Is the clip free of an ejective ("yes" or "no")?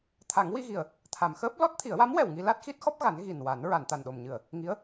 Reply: yes